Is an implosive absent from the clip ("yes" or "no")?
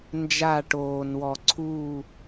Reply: yes